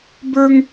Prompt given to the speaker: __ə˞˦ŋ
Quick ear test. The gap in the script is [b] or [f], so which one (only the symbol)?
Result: b